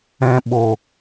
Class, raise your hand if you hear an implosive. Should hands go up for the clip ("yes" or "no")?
yes